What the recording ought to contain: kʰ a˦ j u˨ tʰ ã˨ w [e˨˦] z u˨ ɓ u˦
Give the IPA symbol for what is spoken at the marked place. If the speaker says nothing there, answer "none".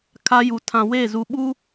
e˦˨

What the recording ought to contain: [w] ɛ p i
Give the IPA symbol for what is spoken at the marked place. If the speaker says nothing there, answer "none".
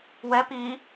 w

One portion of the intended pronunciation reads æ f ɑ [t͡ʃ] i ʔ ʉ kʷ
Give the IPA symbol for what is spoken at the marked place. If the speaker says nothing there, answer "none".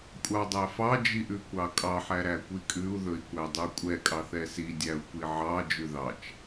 d͡ʒ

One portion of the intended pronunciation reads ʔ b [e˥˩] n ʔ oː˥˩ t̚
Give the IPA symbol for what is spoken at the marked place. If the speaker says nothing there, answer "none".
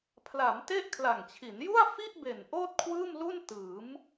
e˨˩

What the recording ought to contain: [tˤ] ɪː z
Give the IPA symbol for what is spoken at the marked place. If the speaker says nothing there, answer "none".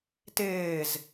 t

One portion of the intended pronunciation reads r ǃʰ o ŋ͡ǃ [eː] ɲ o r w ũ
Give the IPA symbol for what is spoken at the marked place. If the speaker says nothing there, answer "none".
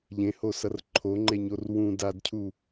e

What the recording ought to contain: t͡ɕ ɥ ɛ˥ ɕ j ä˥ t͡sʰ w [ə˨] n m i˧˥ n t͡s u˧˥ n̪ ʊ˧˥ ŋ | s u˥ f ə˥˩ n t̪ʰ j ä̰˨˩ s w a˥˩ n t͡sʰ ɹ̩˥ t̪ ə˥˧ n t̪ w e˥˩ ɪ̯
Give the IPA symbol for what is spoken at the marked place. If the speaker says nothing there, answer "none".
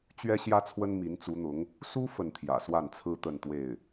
ə˥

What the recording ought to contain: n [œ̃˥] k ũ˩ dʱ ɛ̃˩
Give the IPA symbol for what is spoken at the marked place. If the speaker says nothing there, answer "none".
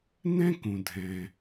ɛ̃˥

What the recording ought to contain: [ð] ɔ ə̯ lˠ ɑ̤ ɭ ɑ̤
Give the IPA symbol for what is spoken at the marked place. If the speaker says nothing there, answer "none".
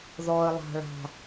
ð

